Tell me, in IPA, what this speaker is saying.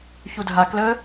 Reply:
ç u dʱ a k l ə

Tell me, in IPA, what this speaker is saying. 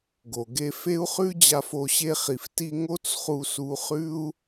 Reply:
ɡ o˨ ɡ e˧ f e˦ u̯ χ ʉ˦ d͡ʑ a˧ f o˧ ɕ e˧ χ i˨ f t i˧ ŋ o˦ t͡s χ u˧ s u˧ χ ʉ˦ u̯

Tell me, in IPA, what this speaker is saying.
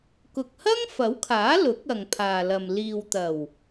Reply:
k ʊ˨ k̚ h ɐ˥ ŋ f ɐ˨˥ w kʰ aː˨˥ l ʊ˨˥ k̚ ɐ˨ ŋ pʰ aː˨ l ɐ˨ m l iː˨ w t̪ ɐ˨˩ w

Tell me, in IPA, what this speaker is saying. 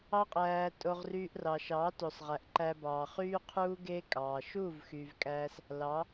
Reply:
ɑ˦ qʼ æː˧ tʼ o˧ ʁ r yː˧ ʔ r ɑ˨ ʃ ɑː˨˦ t o˨ sˤ ʁ æ˨ ʔ ǃ æ˧ b ɑː˨ χ yː˦ qʰ uː˦ ɡ e˦ kʼ ɑː˨ ʃ uː˦˨ v x yː˨ v kʼ æː˧ s | l ɑ˨˦

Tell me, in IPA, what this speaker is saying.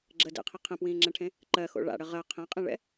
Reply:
ɡ͡ǁ ə d ḛ qʰ i qʰ ɛ̃ p w ĩː ŋ͡ǁ ɛ̃ ʈʰ ẽ | ǃ ɜ x o̰ ɭ a̰ ɽ ə ʁ ɜ qʰ ɛ̃ qʼ ĩ ɭ ɛ̰

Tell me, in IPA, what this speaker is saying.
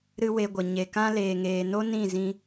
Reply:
ɾ ɨ˦ w e˧ ɡʷ ə˨ ɲ e˨ k ã˧ l eː˨ ŋ eː˨ n o˦ n ĩ˦˨ z ĩ˧

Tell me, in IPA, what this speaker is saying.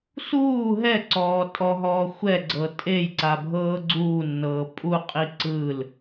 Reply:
s uː ɦ ɛ ǀ ɔː tʼ ɔ ɦ ɔː xʷ ɛ ɡ͡ǀ ɤ tʼ e j ǀ a bʱ ɤː ɡ͡ǀ uː nː ɤː pʼ u qʼ i ǀ ɯ l

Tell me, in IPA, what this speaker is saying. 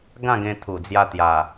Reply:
ɡ ã˥˧ ɡ ẽ˧ t̪ʰ u˨˩ d͡z j a˧ t̪ j a˨˩

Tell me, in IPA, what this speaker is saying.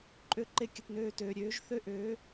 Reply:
ǃʼ ø˧ ǃ e˧ kʲ ə˨ t n øː˧ t øː˨ ɾʲ øː˨˦ ʒ θ ø˦ ʔ øː˨˦

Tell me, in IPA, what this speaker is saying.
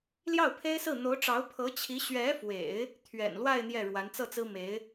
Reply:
l j ɑ˥˩ ʊ̯ pʰ e˥ ɪ̯ s ɹ̩˥˩ n̪ o˧˥ ʊ̯ ʈ͡ʂ ɑ˧˥ ʊ̯ pʰ ɤ˧˥ t͡ɕʰ i˧˥ ɕ ɥ ɛ˧˥ f w ḛ˨˩˦ ɪ̯ | t̪ʰ ɥ ɛ̰˨˩ n l w a˥˧ ɪ̯ n̪ j ɛ˥˩ ɻ w a˧˥ n t͡s ɤ˥˩ t͡s ɹ̩˥ m e˧˥ ɪ̯

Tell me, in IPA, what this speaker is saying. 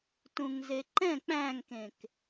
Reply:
t ũ ŋ z e ǃ ɛ̃ k͡p æ̃ ŋ k ẽ k

